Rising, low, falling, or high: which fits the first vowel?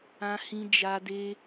high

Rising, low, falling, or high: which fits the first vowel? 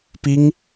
high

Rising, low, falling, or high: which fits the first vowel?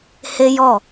high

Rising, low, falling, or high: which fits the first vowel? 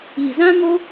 low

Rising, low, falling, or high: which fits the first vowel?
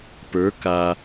rising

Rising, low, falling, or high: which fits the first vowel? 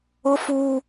high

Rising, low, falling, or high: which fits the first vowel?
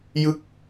falling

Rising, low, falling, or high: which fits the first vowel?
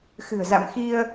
low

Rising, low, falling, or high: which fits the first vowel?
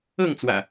falling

